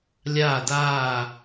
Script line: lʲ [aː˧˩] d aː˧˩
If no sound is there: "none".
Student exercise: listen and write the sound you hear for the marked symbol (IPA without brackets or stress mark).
aː˧˩